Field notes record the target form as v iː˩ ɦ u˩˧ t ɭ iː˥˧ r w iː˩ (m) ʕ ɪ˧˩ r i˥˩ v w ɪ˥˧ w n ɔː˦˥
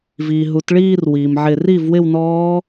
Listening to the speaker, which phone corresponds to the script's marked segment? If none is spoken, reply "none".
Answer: m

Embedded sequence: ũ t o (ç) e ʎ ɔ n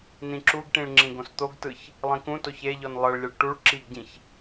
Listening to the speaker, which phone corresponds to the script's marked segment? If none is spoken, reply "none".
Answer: ç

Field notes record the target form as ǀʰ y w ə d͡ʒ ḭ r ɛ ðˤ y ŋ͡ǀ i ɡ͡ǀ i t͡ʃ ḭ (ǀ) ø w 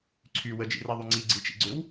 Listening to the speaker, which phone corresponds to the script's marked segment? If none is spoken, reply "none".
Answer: ɡ͡ǀ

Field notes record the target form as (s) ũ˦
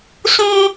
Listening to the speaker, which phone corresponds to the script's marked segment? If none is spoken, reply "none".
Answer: s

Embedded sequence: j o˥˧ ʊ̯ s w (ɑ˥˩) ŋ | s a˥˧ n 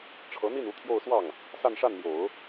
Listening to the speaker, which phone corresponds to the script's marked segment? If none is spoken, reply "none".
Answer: ɑ˥˩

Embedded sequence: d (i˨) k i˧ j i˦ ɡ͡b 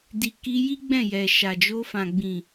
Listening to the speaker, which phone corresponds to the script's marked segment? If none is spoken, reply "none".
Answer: i˨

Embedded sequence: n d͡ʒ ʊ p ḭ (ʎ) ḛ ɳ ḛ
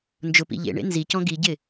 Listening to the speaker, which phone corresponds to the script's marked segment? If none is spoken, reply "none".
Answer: ʎ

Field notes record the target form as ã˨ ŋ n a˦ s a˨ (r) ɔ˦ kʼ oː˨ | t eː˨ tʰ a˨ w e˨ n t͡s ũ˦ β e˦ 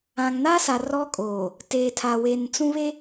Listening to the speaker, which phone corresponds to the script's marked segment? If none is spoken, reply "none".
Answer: r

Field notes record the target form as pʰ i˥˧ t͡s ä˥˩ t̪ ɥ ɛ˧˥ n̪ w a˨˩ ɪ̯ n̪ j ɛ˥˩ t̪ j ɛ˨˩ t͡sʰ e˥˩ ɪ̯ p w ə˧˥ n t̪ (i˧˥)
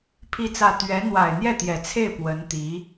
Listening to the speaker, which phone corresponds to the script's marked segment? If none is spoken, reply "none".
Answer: i˧˥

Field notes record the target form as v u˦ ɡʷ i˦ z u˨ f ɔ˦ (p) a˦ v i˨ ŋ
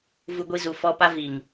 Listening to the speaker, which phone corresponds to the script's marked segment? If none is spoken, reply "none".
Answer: p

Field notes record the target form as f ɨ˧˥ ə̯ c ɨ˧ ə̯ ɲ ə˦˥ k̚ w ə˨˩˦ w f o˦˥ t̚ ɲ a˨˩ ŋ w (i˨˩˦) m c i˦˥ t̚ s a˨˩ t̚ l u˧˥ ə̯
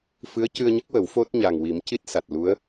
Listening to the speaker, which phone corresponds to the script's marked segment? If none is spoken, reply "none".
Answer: i˨˩˦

